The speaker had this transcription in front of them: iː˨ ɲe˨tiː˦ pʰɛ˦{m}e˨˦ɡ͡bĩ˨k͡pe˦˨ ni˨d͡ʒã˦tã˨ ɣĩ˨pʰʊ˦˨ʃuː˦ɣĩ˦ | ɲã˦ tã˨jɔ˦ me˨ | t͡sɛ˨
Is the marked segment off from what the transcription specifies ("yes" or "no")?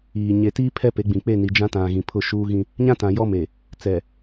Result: yes